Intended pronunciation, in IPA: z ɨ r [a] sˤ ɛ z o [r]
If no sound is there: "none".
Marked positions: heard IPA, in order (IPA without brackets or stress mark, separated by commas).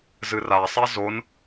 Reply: a, n